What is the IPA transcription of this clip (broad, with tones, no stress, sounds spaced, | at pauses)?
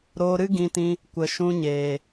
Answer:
ɾ oː˧ ɾ ɨ˦ ɡ ĩ˧ t ĩ˧ | kʷ ə˨ ʃ ũ˧ ɲ eː˨